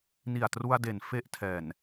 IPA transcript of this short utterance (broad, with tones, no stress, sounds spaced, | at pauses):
n i˨˩ a̯ t r u˧ a̯ d e˨˩ n f e˦˥ ʔ tʰ ɛː˨˩ n